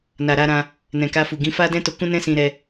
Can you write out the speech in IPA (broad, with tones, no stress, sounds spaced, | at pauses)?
n a˨ ɾ a˧ ɾ ã˧ | n ɛ̃˨ k a˧ f u˨ ɡ ĩ˨˦ f a˦ d ɛ̃˦ t o˧ k ũ˦ n ɛ̃˦ s ĩ˧ ɾ ɛ˧